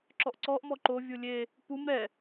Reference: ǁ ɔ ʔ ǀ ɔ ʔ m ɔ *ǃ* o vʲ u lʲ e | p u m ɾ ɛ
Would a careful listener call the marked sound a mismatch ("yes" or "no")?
no